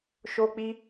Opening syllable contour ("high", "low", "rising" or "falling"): high